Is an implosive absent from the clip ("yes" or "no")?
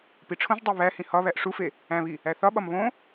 no